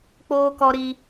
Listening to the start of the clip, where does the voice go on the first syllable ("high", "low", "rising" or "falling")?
high